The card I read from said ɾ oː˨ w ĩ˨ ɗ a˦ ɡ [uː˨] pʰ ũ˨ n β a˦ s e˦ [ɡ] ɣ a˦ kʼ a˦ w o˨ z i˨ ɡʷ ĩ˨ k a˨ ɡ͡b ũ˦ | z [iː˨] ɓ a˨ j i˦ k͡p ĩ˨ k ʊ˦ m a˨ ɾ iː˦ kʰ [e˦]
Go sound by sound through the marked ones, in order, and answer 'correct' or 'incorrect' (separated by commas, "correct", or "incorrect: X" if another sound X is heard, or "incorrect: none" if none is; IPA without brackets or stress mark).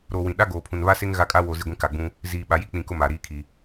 incorrect: oː˨, incorrect: ŋ, correct, incorrect: i˦